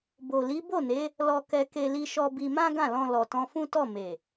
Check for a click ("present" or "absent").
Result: absent